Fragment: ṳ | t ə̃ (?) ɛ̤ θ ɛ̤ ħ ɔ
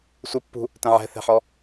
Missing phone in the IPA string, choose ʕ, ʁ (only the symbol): ʕ